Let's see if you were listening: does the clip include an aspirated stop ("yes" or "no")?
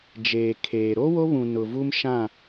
yes